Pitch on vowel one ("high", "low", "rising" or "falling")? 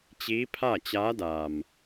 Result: rising